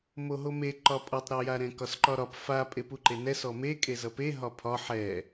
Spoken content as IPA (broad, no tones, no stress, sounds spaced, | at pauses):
m o ɦ o m e ǃ ɒ pʼ ʌ tˤ ɾ ɒ j a ɾ ɛ̃ k ɒ s ǃ ɒ ɾ ɒ p f a pʼ e p u ǃ e n ɛ s ɔ m e kʼ e z ʌ p e ɦ ɒ pʰ ɒ ħ ɛ